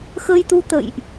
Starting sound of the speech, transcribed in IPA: x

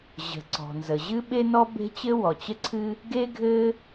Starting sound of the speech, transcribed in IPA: ʑ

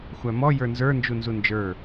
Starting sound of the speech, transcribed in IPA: xʷ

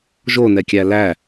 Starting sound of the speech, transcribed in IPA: ʒ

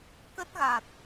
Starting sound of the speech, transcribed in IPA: k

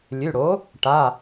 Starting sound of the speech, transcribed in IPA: lʲ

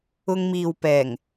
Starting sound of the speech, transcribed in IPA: ʊ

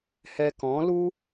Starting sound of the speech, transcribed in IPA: h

